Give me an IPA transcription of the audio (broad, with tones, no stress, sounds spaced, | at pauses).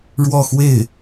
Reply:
ɻ w ɔ˥˧ x w e˥˩ ɪ̯